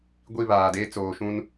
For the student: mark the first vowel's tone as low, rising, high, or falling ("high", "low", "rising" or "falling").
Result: falling